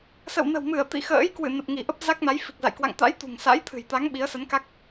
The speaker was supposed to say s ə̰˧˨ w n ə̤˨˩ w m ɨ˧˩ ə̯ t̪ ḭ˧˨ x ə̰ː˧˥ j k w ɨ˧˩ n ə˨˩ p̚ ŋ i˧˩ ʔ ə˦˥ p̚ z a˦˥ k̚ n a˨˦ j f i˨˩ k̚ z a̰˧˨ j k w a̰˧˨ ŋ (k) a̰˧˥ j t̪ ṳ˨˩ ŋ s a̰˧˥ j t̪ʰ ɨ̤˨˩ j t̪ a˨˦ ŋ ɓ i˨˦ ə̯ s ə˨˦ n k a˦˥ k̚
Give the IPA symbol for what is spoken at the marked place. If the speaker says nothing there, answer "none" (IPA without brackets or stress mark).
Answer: t̪